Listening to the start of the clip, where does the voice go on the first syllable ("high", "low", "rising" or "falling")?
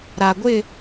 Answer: low